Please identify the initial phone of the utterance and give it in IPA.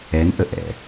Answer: ɛ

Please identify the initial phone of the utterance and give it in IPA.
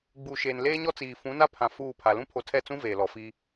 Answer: ɡ͡b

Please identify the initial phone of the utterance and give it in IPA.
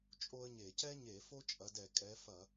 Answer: t͡ʃʼ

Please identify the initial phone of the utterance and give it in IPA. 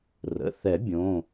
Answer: r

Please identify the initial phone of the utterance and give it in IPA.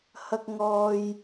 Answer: h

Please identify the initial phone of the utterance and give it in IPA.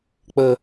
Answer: k͡p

